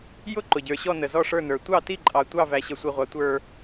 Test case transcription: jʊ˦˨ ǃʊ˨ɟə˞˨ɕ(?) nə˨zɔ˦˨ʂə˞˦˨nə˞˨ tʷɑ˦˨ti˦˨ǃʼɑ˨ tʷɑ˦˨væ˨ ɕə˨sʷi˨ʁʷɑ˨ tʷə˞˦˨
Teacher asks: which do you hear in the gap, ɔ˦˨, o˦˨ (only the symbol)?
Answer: ɔ˦˨